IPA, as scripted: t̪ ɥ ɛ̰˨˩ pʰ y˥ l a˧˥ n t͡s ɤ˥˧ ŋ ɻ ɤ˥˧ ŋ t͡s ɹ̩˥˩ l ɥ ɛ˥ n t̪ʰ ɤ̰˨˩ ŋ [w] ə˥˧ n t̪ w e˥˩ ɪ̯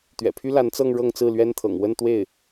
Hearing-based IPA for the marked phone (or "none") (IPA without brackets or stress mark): w